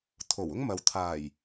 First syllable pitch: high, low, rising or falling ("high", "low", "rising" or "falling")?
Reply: low